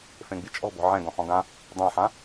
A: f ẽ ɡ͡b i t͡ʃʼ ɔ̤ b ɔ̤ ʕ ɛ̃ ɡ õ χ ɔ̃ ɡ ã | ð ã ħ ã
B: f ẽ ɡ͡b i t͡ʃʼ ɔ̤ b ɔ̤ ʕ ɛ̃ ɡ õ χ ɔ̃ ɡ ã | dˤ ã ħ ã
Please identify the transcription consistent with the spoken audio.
B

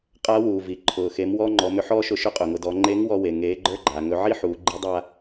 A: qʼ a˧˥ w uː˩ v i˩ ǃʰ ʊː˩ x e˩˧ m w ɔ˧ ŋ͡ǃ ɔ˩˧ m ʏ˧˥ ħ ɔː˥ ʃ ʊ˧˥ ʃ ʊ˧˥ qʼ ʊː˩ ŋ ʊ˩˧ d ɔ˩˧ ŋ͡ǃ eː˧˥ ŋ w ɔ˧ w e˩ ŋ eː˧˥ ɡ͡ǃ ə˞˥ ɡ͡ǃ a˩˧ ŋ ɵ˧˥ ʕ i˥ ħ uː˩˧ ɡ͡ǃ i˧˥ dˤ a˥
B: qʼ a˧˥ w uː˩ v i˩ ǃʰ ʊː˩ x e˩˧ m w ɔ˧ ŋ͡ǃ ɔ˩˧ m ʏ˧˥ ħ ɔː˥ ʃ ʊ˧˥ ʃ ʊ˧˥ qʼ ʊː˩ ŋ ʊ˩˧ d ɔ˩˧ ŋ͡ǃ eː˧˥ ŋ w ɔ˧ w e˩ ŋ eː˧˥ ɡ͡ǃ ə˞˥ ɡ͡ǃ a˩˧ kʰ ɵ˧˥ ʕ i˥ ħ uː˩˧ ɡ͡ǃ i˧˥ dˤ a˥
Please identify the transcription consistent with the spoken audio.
A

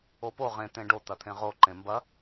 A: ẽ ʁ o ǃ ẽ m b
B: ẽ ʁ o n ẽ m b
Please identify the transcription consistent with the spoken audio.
A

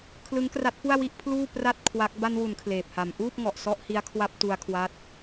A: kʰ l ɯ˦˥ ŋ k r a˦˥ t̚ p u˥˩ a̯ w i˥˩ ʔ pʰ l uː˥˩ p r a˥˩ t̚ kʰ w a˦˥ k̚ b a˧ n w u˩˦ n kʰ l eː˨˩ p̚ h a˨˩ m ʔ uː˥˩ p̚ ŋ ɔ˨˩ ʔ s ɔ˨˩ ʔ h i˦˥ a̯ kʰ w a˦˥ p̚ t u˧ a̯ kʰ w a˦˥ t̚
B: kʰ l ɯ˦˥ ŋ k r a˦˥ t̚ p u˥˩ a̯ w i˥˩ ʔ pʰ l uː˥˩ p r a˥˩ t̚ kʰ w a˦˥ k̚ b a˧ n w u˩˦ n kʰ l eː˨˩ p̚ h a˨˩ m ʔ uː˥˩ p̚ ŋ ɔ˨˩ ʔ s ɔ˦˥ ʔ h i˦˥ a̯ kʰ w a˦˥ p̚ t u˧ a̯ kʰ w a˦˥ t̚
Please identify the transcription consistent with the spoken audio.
B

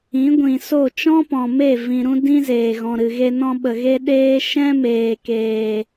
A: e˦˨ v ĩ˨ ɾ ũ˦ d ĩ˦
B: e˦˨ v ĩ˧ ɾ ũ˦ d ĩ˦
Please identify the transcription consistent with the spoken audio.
A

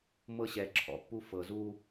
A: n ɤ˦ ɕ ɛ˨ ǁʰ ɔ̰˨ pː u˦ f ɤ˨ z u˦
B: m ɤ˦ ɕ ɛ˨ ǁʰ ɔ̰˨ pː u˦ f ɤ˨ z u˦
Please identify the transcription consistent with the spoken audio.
B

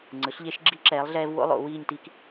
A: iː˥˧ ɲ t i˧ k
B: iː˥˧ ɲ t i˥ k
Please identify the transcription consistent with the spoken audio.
B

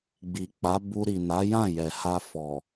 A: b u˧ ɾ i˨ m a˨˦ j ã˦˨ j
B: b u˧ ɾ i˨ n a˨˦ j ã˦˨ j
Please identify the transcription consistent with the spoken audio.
B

